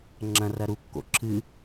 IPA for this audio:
ŋ͡ǁ ɐ̃ r ɐ ɾ u kː o̰ ǁʰ ɨ

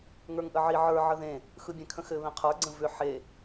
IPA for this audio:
ŋ ə˞ ŋ ʔ ə ʕ i ʕ ə˞ ʕ ə ð ẽ | x ɯ bʲ ɛ̃ kʰ ə̃ x ɘ β ẽ qʰ ə˞ ɡ͡ǀ ə̃ v ʏ ħ e

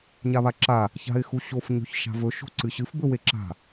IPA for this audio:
ɲ a β a ǁ a | ç a̤ ɪ̯ x u ɕ o f ɲ o̤ ç ʃ a̤ v ɵ ʃ o̤ ǀ ɨ ɕ ɨ f b ɵ w e ǁ a̤

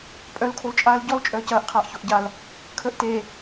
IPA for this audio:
pʼ œ l kʰ o l t͡ʃʼ aː l ɟ ɔ l t͡ʃʼ œː c ɐː ʔ qʰ aː ʔ ç o ʔ ɟ a l | kʰ əː ʔ t eː

